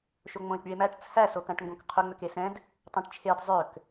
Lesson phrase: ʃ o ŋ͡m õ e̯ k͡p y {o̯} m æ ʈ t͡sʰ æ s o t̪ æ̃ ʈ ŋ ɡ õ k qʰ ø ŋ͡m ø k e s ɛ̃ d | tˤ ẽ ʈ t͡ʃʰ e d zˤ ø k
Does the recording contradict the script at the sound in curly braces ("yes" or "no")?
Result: yes